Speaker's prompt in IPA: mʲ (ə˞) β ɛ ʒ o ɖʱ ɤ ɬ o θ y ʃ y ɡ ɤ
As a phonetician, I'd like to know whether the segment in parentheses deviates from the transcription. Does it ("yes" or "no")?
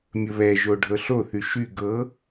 yes